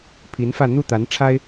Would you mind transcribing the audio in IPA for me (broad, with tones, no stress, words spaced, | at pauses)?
pʰi˧˥nfä˥˧ n̪u˥˩t̪a˧˥nʈ͡ʂʰa˥ɪ̯